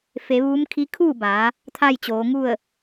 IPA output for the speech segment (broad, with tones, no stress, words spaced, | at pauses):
fe˩˧ ʋuː˧˥mkʰi˧˥ kʰuː˥˨baː˩˧ | t̪ʰaː˥˨jt͡ɕoː˩˧ ŋu˥˨ə̯